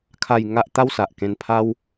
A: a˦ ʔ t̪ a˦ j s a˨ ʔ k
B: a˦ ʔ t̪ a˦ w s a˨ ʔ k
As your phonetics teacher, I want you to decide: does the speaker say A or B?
B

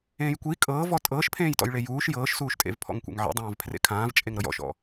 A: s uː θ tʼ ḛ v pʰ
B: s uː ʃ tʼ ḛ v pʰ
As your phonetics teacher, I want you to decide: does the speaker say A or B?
B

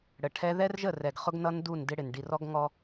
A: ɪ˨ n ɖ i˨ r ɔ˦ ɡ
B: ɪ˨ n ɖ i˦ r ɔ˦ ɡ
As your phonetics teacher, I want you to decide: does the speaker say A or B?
A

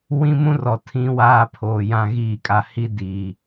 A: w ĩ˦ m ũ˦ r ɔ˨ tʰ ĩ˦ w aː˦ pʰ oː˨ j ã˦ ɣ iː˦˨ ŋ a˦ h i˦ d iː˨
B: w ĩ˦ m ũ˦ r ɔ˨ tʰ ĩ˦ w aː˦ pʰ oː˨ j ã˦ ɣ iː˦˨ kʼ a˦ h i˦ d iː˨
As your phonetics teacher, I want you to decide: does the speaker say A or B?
B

